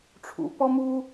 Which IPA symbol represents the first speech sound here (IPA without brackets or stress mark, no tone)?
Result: ʈ͡ʂʰ